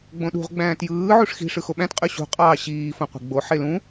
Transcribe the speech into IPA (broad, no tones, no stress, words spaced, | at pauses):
ɡ͡bõɗṳʁ ɡ͡bæ̃ːtjɯː ʕuʂxi̤ ʂɯxoɓæ̃t qʼyɕṳ qʼɑːɕiː fõqʷe̤ɡ͡bo ħelũ